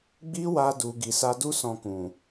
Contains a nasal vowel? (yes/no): yes